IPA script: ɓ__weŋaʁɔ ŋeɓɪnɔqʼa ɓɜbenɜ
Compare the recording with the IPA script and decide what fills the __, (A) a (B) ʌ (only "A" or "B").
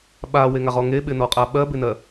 A